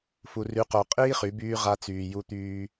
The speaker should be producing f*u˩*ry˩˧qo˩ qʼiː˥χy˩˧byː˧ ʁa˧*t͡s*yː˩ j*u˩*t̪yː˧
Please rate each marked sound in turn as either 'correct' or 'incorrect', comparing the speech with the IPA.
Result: correct, correct, incorrect: u˧

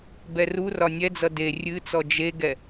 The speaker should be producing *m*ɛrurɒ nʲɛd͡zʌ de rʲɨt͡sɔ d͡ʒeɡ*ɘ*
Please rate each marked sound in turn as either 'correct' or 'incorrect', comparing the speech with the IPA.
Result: incorrect: b, incorrect: ɛ

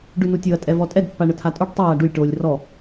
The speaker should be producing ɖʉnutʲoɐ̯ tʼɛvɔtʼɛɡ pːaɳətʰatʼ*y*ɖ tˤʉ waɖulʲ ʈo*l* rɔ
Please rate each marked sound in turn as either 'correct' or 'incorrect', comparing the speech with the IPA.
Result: incorrect: u, incorrect: lʲ

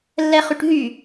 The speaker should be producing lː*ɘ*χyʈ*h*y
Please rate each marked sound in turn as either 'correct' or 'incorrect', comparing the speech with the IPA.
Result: incorrect: ɛ, incorrect: ɦ

